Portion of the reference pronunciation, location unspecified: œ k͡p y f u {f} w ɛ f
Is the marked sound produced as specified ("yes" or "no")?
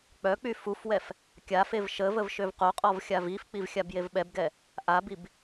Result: yes